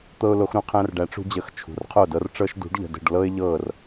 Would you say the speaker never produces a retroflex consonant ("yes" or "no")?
no